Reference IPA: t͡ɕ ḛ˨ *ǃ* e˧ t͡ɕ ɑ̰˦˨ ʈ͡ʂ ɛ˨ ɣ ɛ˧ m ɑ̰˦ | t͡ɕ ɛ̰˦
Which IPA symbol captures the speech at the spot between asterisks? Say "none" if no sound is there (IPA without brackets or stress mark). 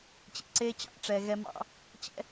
ǀ